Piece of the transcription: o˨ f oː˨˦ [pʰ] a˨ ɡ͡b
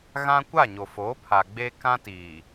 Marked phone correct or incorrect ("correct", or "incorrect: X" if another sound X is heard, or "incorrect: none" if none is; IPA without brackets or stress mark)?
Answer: correct